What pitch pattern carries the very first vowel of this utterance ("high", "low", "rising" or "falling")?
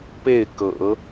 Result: falling